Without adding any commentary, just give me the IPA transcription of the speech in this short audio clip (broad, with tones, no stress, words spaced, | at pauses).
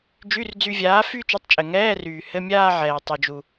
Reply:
d͡ʒy˧˥˧rd͡zy˧vʲaː˨˥ fyː˥˧t͡ʃu˨˥tˤt͡ʃʼɘ˩ ŋɛː˧˥˧ryː˩ hɘ˧˥˧mʲaː˥˧ʕɛː˩ tˤu˩d͡ʒu˩